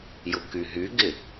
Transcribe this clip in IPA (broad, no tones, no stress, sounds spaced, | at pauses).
j ʊ k y ɦ y ɡ ɪ